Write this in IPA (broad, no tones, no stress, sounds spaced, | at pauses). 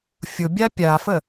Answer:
fʲ ʊ bʲ a pʲ a f ə